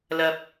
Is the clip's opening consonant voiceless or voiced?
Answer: voiced